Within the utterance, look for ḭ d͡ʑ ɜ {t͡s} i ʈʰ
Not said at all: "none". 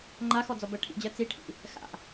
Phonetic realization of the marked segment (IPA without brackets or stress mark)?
t͡s